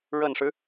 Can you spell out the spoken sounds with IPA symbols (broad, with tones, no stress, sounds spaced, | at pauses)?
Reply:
ɻ ə˨˩ n ʂ ɻ̩˦